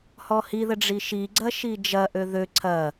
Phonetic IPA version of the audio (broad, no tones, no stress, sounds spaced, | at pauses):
h ɔ h i ð ə ɖ͡ʐ i ʃ i ɡ͡ǀ ɐ ʃ i d͡ʒ ɐ ʔ ø ð ø ǀʰ ɐ